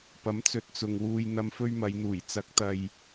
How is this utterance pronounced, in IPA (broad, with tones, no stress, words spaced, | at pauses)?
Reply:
pɐ˨˥mt͡sɵ˧t̚t͡sʊ˨ŋwuː˧j n̪ɐ˧mfɵ˥ɥmɐ˨˧jn̪uː˨˩j t͡sɐ˨˥k̚t̪ɐ˨j